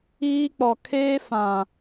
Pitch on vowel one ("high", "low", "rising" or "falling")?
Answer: high